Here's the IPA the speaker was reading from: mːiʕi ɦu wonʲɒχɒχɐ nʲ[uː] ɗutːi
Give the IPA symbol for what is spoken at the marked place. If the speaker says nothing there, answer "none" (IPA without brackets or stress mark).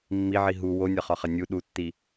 u